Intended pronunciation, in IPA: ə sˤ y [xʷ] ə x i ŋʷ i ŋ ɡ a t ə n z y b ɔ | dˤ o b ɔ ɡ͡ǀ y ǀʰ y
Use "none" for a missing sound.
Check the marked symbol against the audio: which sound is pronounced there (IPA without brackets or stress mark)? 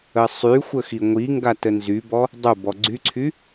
xʷ